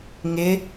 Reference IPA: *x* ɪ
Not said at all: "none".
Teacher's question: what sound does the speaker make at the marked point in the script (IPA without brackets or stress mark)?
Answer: ŋ